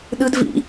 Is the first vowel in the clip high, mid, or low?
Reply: high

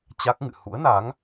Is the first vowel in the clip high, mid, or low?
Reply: low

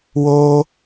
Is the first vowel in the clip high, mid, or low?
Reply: mid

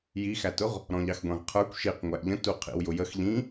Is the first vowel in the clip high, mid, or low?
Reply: high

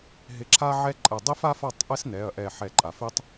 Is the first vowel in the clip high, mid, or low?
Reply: high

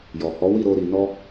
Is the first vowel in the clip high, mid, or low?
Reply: mid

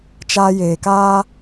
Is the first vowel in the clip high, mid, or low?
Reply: low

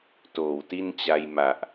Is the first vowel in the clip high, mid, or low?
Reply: mid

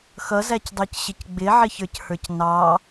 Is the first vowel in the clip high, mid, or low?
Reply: mid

